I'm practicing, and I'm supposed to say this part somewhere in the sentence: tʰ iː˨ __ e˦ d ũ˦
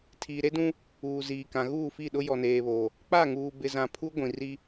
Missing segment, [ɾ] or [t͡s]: ɾ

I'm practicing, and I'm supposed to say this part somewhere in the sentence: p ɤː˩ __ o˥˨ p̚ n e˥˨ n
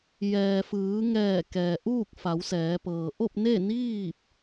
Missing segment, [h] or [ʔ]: ʔ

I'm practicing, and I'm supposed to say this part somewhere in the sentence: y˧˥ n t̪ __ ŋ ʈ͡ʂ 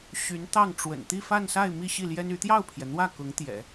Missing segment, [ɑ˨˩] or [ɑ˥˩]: ɑ˥˩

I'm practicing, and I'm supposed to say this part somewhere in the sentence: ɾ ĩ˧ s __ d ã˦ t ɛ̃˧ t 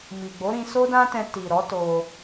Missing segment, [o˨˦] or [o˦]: o˦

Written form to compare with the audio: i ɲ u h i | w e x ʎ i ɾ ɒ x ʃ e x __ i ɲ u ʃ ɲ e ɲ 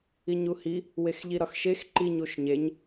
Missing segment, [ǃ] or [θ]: ǃ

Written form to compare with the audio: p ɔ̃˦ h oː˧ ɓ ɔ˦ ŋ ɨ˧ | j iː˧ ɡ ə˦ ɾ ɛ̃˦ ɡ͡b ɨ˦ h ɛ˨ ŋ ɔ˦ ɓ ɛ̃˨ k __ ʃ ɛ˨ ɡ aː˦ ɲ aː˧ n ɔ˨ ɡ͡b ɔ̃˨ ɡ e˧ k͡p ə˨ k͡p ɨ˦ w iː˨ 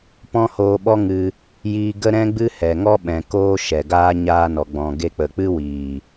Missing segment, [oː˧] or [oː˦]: oː˦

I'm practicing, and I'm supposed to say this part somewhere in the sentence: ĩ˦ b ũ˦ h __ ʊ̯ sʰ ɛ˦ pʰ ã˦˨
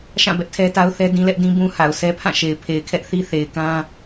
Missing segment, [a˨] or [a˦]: a˨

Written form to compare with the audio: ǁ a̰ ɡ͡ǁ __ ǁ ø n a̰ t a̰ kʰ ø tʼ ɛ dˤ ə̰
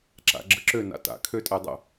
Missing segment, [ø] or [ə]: ə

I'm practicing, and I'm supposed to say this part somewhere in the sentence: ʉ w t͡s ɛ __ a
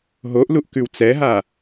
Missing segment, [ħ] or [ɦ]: ɦ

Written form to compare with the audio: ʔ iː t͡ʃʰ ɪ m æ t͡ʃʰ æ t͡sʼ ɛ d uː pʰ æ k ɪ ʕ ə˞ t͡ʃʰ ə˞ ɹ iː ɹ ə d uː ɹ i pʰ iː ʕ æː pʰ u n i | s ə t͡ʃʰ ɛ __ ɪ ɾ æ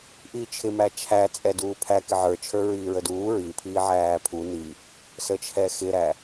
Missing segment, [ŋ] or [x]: x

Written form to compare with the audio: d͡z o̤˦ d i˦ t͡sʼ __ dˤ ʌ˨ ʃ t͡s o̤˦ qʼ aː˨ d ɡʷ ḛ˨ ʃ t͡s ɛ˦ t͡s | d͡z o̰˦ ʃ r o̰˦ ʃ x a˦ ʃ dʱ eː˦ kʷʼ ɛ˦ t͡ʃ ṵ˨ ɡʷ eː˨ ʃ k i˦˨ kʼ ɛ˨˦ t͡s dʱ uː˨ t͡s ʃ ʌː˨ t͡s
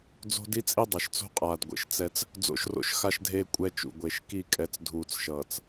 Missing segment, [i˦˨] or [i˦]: i˦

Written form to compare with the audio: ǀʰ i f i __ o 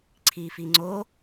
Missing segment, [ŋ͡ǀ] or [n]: ŋ͡ǀ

